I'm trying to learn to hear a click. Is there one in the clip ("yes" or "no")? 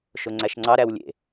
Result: yes